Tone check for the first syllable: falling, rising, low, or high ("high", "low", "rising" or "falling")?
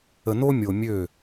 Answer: low